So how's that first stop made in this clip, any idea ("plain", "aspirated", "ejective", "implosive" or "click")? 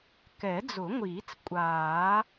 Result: plain